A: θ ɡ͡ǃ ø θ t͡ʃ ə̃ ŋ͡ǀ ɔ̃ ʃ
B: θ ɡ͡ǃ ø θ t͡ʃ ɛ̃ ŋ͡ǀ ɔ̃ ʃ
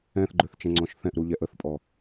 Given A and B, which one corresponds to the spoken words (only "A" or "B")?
B